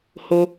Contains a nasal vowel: no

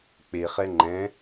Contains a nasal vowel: yes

